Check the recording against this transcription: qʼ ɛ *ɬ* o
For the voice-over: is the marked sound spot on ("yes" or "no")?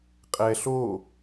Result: yes